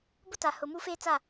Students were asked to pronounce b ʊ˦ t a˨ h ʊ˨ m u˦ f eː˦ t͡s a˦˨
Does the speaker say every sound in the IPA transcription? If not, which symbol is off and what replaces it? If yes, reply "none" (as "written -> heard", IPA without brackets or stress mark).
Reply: none